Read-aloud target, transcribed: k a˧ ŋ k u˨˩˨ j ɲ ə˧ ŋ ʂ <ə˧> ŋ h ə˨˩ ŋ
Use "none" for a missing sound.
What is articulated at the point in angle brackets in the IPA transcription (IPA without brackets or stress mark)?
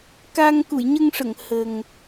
ə˨˩˨